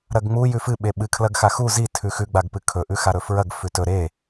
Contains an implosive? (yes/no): yes